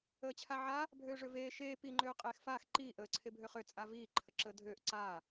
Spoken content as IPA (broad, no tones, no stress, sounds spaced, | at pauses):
əː t͡ɕʰ a ʕ a | bʱ øː ʐ ø v eː ʃ eː p i ŋ͡ǃ øː qʼ eː x f aː x ǃ iː ʔ əː ǀʰ e bʱ ø χ ø t͡sʼ a v iː ǃʰ ə ǁ əː dʱ øː ʔ ǀ aː